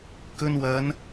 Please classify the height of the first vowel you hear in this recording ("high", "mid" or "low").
mid